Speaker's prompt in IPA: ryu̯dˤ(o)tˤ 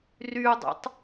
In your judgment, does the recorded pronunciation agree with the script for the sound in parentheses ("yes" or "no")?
no